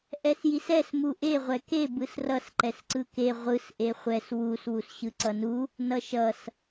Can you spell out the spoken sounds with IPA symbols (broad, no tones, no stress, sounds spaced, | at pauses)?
ʔ ɛ s j i s ɛ s m u ʔ e ʁʷ ɛ k e b ɯ s r ʌ s ǃ ɛ s ǀ ɯ k e ʁʷ ɯ s ʔ e χʷ ɛ s w u s w u s ɕ ɯ ǀ ʌ n u | n ʌ ʃ ʌ s